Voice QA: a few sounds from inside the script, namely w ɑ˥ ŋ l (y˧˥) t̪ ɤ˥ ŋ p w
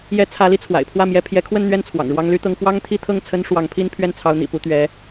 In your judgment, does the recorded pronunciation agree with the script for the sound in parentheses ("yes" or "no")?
no